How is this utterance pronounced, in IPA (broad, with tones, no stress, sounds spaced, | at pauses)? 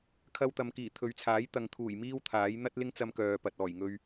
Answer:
kʰ ɐ˧ w t̪ ɐ˨ m k iː˨˩ t̪ʰ ɵ˨˧ ɥ t͡sʰ aː˨˥ j t̪ ɐ˨ ŋ t̪ʰ uː˨˩ j m iː˥ w t̪ʰ aː˨˥ j n̪ ɐ˥ t̚ l ɪ˥ ŋ t͡s ɐ˧ m k œː˨ p ɐ˨ t̚ ɔː˨˩ j ŋ ɵ˧ ɥ